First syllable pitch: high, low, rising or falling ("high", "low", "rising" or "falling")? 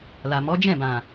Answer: low